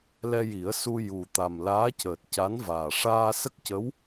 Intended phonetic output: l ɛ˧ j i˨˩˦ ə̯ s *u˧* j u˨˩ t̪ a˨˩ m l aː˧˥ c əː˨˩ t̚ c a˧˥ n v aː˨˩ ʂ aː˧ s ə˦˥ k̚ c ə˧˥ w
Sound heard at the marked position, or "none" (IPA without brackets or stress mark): u˧